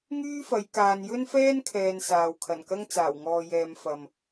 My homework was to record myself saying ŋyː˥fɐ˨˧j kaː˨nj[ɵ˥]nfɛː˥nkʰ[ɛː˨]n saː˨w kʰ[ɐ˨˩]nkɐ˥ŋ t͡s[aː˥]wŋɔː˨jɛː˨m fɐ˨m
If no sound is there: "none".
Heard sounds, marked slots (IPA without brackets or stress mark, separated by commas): ɵ˥, ɛː˨, ɐ˨˩, aː˨˩